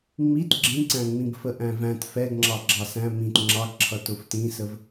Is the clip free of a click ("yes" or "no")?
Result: no